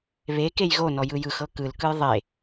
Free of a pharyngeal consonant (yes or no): yes